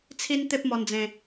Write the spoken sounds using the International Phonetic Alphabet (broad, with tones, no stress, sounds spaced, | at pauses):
t͡sʰ i˦ n t̪ e˦ p̚ m ɔ˧ n d͡z ẽ˧